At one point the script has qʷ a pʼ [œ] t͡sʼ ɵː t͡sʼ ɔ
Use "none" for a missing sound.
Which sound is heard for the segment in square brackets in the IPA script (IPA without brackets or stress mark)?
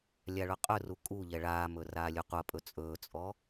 ɵ